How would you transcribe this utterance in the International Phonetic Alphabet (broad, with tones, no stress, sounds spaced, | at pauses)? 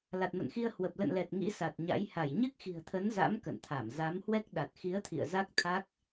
l a˨˩ t̚ m ə̰˧˨ n x i˧ ə̯ h w ə˨˩ p̚ l ə̰˧˨ n l ɛ˨˩ t̚ ŋ ḭ˧˥ s a˨˩ t̚ ɲ a̰˧˥ j h a˧˩ j ɲ ɨ˦˥ k̚ x i̤˨˩ ə̯ t̪ʰ ə˨˦ n z a̰˧˥ m k ə̰˧˨ n t̪ʰ a˧˩ m z a˨˦ m h w ɛ˦˥ k̚ ɗ a˨˩ t̚ x i˨˦ ə̯ t̪ʰ ḭ˧˨ ə̯ z a˦˥ k̚ t̪ʰ a˦˥ k̚